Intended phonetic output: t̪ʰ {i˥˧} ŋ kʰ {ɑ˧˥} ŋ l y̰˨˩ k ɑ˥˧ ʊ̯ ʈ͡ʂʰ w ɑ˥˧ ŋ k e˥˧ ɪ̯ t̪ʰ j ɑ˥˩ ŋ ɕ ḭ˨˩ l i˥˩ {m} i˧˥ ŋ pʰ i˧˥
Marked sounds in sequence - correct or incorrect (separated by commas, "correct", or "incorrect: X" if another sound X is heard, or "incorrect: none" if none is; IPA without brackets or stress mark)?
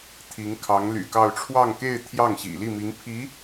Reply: incorrect: i˧˥, correct, correct